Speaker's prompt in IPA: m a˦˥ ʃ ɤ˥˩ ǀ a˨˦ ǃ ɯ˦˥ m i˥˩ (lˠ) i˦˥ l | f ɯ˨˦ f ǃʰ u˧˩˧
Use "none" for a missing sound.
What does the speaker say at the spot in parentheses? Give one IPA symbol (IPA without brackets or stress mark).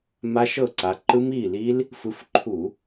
l